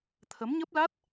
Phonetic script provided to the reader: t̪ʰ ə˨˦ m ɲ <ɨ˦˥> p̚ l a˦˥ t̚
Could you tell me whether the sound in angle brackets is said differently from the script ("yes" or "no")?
yes